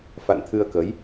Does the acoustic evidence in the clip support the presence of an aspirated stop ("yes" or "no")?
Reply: yes